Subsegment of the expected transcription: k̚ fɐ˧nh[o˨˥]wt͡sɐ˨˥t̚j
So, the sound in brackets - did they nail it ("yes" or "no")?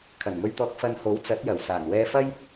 yes